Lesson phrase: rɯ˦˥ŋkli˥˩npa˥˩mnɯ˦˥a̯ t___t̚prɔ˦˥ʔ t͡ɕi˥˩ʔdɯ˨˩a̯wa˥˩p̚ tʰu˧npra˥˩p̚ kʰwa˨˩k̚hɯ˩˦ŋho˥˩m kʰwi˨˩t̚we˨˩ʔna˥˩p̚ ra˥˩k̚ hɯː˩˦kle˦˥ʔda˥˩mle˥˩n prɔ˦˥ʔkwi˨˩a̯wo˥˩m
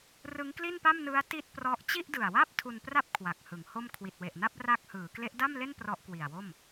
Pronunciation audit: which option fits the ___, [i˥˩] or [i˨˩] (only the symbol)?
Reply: i˥˩